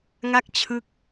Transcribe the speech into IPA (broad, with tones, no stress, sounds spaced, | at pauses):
ŋ a˥˩ k̚ t͡ɕʰ ɯ˦˥ k̚